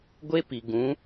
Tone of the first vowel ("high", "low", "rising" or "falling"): high